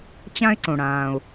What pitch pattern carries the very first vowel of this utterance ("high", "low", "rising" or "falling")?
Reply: high